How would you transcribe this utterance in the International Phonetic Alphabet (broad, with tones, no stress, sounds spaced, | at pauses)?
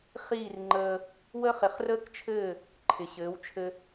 χ iː˥˩ r ŋ͡ǃ əː˧ | w əː˥ χ ɪ˩˥ χ r əː˥ k t͡ʃʰ ɘː˥˩ | ǃʰ ɪ˩ ɕ ɘː˩˥ w t͡ʃʰ ɘ˧